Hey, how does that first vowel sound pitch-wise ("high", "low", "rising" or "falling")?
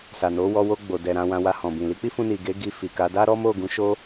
low